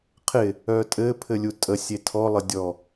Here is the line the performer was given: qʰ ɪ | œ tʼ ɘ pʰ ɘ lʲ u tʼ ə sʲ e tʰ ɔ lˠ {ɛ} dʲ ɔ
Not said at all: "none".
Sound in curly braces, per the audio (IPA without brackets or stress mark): ə